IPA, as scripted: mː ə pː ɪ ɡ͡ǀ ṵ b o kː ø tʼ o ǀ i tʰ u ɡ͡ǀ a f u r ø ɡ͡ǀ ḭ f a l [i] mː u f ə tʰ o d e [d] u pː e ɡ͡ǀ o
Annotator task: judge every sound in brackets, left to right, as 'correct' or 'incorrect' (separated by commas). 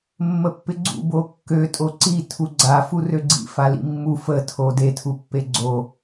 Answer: incorrect, incorrect